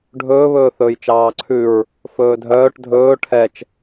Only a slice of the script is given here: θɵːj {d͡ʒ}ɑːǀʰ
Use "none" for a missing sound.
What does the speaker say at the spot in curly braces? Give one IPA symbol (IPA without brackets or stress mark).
t͡ʃ